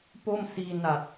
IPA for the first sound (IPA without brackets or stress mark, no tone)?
p